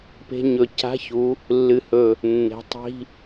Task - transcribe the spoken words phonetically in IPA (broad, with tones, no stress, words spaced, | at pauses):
pe̤˧ɲɵ˨˩˦ca̤˧˥˧ çu˨˥ | lːɨ˨˩hɵ˨˩ | nːe̤˨˥tˤi̤˧˥˧